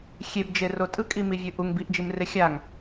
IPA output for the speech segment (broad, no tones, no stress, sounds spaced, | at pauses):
xʲ e b d͡ʒ e r o tʼ ɯ kʼ i m i vʲ ɯ ʔ u ŋ b i ʔ d͡ʒ i m r e xʲ a ŋ